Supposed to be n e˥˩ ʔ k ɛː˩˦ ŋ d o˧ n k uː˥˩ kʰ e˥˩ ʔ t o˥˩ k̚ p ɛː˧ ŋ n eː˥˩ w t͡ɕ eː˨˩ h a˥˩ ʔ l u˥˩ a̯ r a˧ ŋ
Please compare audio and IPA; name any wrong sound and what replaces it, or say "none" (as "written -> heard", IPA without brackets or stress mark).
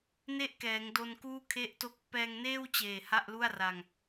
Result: none